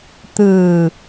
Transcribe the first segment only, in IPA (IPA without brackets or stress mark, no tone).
t̪